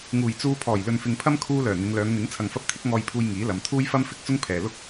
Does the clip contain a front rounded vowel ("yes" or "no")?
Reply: yes